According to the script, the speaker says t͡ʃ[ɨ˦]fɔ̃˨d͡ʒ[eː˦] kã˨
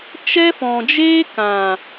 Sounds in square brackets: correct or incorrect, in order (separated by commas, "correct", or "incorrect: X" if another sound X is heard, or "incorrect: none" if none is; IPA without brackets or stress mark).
incorrect: ɛ˦, correct